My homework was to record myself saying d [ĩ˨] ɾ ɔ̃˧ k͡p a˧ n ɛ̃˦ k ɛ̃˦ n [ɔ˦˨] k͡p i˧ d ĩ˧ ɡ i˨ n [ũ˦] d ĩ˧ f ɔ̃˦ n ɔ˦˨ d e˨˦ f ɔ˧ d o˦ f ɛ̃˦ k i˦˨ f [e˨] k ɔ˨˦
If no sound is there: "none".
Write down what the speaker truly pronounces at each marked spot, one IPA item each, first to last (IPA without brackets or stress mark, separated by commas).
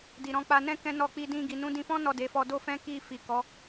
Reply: i˨, ɔ˦˨, ũ˨˦, i˨